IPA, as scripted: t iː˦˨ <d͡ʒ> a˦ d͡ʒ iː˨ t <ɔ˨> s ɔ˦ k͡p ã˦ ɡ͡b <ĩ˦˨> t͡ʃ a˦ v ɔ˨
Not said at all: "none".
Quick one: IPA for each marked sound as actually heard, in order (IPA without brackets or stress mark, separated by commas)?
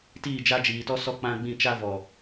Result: d͡ʒ, ɔ˦, ĩ˦˨